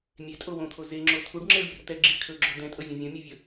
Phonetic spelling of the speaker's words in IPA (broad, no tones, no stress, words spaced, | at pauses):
mʲetʼo wõt̪ʰo zeŋ͡ǁo tʰuɖŋ͡ǁeɭvʲər t̪ɛɡ͡ǁi kʰɵɡ͡ǁɵ d̪ɛ̃tʼɤvʲõ vʲõmʲovʲɵ